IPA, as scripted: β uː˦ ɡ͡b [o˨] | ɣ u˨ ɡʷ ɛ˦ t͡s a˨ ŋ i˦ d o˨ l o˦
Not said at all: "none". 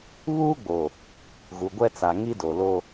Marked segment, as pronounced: o˨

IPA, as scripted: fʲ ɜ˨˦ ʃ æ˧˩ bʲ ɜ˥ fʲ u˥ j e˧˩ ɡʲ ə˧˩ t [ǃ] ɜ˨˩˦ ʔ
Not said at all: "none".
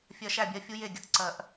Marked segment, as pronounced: ǀ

